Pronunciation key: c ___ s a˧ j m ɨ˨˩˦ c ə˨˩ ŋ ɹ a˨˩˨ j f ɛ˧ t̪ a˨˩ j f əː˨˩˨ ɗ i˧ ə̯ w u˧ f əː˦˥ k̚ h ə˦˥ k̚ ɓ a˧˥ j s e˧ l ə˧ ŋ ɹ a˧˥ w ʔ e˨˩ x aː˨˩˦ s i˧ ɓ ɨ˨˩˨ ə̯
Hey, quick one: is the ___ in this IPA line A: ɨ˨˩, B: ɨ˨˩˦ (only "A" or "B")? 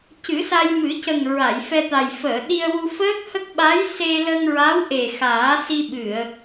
B